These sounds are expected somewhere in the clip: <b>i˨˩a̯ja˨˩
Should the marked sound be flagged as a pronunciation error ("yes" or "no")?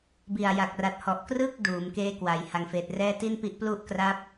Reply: no